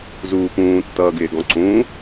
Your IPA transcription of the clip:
z uː p ũː tː ʌː ɡ ɪː ɡ ɔ̃ ǀ ũː

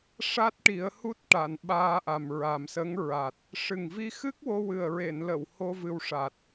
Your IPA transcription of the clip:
ʂ a˦˥ t̚ ʈ i˨˩˦ ə̯ h u˦˥ t̚ ʈ a˨˩˨ n ɓ aː˧ ʔ a˨˩ m ɹ a˨˩ m s ə˧˥ ŋ ɹ a˨˩ t̚ | ʂ ɨ˨˩ ŋ v i˧ x ɨ˦˥ k̚ w o˧ w ɨ˨˩ ə̯ ɹ e˨˩˨ n l ə˨˩˨ w h o˧ v ɨ˧ w ʂ a˨˩ t̚

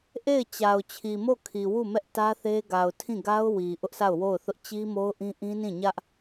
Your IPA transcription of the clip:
ʔ e˦˨ ɪ̯ t͡ɕ a˨ ʊ̯ t͡ɕʰ i˨ m o˦˨ kʰ i˨ w u˦˨ m ɛ˦ ʔ t ä˦ θ e˦ ɡ a˨ ʊ̯ tʰ ĩ˦˨ ɡ a˦ ʊ̯ w i˨ ʔ ʊ˦ ʔ s a˦˨ ʊ̯ w o˦˨ ʊ̯ θ ʊ˦ ʔ t͡ɕ i˦ m o˦ ʊ̯ ʔ ĩ˦ ʔ ĩ˦ n ĩ˦˨ ɲ ä˦ ʔ

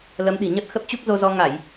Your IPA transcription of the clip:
l ə˨˦ m ɗ i̤˨˩ ɲ ə˦˥ t̚ x ə˦˥ p̚ t͡ɕ u˦˥ k̚ z o˧ z ɔ˧ ŋ a˧˩˨ j

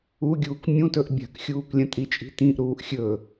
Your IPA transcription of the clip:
u ɡʲ uː k mʲ ũ t ɵ ʔ bʲ a̤ k xʲ uː k lʲ ɐ̃ tʼ i t͡ʃʼ i̤ t ĩ ʔ ɾ uː ʔ xʲ ɵ

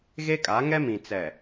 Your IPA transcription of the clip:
ɣ e˦ kʼ a˨˦ ŋ ɛ˦ m ĩ˨ t͡s ɛ˨

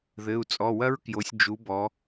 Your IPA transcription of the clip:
ð ɘ˩˧˩ u̯ t͡sʼ ɔ˩˧˩ w ɐ˦˥ ɹ k j o˩˧ sʲ d͡ʒ u˩˧ b ɔ˩˧

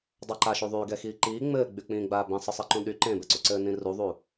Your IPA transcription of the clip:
dˤ a ǃ a ʃ y ðˤ yː ɡ ɛ x iː ǃ iː ŋ͡m ɘː ɡ͡b y k͡p ĩː ɡ͡b aː b ĩ sˤ ɘ sˤ i ǃ ũ ɗ y ǃ ẽ b ɛ ǀ u ǀ ɘː n ĩ r u ðˤ u

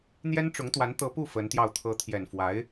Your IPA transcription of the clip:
n̪ j ɛ˥ n ʈ͡ʂ ʊ˧˥ ŋ t̪ w a˧˥ n t̪ ɤ˧˥ p u˥˩ f ə˧˥ n t̪ j ɑ˥˩ ʊ̯ t̪ʰ ɤ˧˥ t̪ʰ j ɛ˨˩ n f w a˧˥ ɪ̯

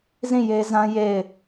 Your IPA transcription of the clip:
z ĩ˦˨ j e˦ z ã˦ j e˦˨ ɪ̯

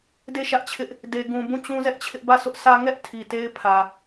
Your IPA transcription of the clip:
d e˦˨ ʃ ä˦ ʔ t͡ɕʰ ɪ˦ ʔ | d e˨ ɡ ũ˨ b ũ˦˨ t͡ɕ ũ˦ z ɛ˦ ʔ t͡ɕʰ ɪ˦ ʔ b ä˦˨ s ʊ˦ ʔ s ä˦ ŋ ɛ˦ ʔ tʰ i˨ t e˦ ɪ̯ pʰ ä˨

